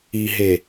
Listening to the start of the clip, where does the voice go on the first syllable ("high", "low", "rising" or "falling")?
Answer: low